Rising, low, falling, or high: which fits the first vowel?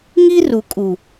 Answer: high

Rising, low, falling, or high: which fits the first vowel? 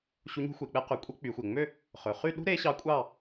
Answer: rising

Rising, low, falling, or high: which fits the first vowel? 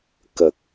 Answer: low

